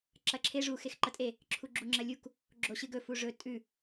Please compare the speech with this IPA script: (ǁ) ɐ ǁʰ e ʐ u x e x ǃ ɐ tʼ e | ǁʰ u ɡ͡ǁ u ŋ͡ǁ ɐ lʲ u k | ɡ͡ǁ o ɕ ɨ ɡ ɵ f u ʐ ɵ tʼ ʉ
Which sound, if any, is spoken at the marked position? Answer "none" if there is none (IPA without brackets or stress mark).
ǁ